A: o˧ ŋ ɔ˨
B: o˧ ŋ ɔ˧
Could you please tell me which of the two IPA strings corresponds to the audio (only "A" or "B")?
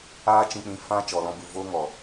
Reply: A